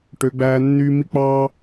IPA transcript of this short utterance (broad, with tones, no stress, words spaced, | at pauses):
ʈø˨˦ɡ͡bæː˦nːyː˦ mi˦k͡pɑː˦